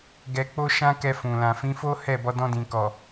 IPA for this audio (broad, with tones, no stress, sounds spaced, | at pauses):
ɡ ɛ˧ k͡p o˦ ʃ ã˦ k ɛ˧ f ũ˨ l ã˨ f ĩ˨˦ f o˦ h ɛ˦˨ b ɔ˧ d ɔ̃˧ d ĩ˨ k ɔ˨